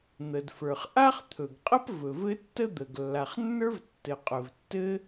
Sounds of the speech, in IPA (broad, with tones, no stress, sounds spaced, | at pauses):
n̪ ə˩ d f ə˞˩ χ ʔ a˥ χ t̪ʰ ɵ˩ ɡ qʼ ə˥ p v ɵ˩ v ɘ˥ tː ə˥ d̪ ə˩ ɡ lː a˩ χ nː ə˞˥ v tː ɘ˩ qʼ ɵ˩ v tː ɘ˥